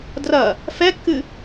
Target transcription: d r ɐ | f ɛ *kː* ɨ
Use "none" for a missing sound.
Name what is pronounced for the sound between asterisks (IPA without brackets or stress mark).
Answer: kː